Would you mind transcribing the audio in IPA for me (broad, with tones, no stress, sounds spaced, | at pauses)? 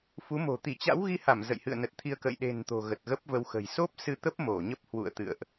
f u˨˦ m o̤˨˩ t̪ i˧˩ t͡ɕ a̰˧˥ w ɣ i˧ h a˧˩ m z ə̰˧˨ j h ɨ̰˧˨ ə̯ n ə˨˩ t̚ t̪ʰ i˧ ə̯ k ə̰˧˨ j ɗ e̤˨˩ n t̪ o̤˨˩ ɣ ə˨˩ t̚ ɣ ə˦˥ p̚ v ə˧ w x ə̤˨˩ j s o˦˥ p̚ s ɨ˧ t̪ ə˦˥ p̚ m o˧˩ ɲ ə˦˥ p̚ h w ṵ˧˨ ə̯ t̪ ɨ̰˧˨ ə̯ ʔ